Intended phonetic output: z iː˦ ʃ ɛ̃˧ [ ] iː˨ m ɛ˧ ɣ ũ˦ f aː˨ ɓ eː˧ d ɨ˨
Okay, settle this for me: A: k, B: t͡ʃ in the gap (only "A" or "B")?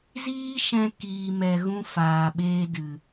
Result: A